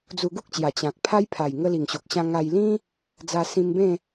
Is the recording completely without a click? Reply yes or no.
yes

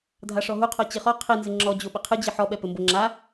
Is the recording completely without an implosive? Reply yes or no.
no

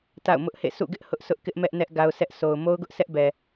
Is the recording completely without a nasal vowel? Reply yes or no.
yes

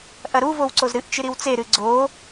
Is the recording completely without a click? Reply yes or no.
no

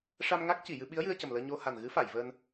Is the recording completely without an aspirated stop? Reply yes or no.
yes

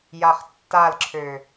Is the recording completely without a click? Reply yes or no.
no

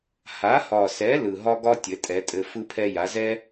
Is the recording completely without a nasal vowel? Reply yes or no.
yes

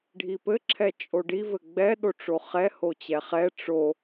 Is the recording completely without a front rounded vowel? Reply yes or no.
yes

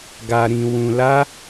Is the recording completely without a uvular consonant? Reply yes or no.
yes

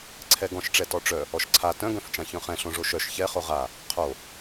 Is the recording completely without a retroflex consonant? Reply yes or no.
no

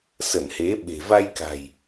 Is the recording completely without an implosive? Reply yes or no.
no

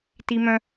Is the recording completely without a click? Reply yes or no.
yes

